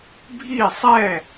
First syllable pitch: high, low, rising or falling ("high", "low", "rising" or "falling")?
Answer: falling